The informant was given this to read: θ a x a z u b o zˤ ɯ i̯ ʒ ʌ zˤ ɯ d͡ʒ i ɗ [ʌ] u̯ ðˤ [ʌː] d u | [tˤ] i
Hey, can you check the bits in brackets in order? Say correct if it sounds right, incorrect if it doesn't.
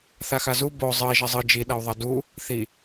correct, incorrect: ʌ, incorrect: θ

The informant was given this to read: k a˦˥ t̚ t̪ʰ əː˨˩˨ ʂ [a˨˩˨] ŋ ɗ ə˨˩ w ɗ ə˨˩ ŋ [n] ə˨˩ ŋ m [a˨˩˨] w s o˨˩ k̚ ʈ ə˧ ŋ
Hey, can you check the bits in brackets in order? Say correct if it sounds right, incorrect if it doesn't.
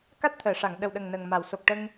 correct, correct, correct

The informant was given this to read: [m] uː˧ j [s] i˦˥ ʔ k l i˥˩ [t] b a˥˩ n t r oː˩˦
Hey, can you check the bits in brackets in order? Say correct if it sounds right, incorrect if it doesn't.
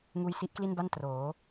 incorrect: ŋ, correct, incorrect: n

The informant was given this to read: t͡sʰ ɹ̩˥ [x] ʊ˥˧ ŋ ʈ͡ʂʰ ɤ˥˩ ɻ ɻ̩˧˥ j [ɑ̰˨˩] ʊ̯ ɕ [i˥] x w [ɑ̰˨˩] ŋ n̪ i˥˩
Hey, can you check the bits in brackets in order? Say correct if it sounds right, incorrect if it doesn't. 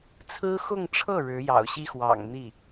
correct, correct, correct, correct

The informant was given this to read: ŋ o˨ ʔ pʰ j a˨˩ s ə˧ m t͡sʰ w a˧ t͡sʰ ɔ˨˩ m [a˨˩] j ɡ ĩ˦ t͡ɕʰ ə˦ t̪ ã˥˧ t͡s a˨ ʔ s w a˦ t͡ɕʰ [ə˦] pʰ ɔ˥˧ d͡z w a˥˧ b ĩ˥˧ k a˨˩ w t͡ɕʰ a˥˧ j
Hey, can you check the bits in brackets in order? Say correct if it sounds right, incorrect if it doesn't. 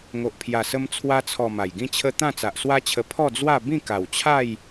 correct, incorrect: ə˧

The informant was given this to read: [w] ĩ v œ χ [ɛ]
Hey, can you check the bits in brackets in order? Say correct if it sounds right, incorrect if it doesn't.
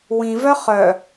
correct, incorrect: œ

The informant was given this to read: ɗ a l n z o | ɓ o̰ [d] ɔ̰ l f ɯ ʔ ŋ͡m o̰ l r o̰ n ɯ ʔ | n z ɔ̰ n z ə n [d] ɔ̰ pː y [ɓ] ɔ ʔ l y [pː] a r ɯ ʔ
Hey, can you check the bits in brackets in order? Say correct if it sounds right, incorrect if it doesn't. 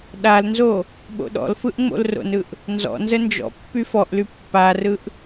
incorrect: ɗ, incorrect: d͡ʒ, incorrect: f, correct

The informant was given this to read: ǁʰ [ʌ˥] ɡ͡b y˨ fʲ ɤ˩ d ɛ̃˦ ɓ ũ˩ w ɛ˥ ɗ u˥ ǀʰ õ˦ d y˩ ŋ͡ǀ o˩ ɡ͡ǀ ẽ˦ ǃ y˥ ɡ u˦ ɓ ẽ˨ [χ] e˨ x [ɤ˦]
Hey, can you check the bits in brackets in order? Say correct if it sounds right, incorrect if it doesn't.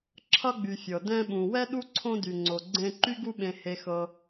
correct, incorrect: h, incorrect: ɤ˨

